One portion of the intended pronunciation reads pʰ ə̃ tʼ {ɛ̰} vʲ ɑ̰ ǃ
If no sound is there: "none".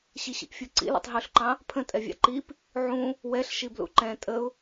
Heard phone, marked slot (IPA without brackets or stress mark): ɛ